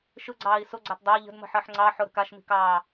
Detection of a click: present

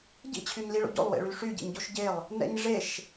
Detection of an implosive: absent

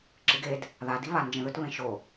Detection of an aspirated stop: absent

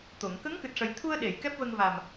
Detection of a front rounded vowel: absent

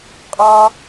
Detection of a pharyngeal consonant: absent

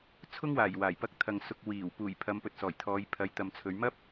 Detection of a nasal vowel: absent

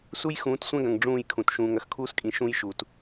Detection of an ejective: present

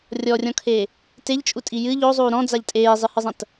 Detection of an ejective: present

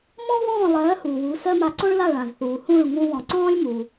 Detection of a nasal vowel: present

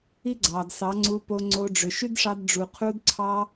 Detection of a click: present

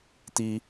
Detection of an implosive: absent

